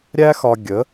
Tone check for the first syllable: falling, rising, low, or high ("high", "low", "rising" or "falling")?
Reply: high